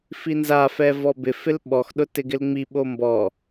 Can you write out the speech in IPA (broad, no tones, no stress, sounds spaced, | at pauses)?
f i n z a f ɛ v ɔ b ɪ f ɪ l ɓ ɔ x ɗ ʊ t ɪ ɡ ɪ l ŋ͡m i ɓ o m b ɔ